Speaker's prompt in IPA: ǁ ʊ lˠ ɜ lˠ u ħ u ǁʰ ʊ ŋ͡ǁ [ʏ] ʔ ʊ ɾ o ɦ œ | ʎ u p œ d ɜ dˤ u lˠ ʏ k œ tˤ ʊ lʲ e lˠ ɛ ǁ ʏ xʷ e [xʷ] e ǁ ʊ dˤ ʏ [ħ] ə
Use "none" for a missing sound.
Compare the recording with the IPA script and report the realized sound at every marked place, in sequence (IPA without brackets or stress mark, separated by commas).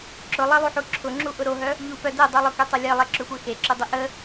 u, x, ʔ